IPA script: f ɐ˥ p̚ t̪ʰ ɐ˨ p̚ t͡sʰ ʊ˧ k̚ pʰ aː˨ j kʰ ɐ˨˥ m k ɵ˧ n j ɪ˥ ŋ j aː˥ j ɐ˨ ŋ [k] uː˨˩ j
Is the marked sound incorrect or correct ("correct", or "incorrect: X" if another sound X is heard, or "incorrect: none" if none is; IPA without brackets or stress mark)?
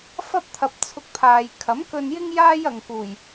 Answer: correct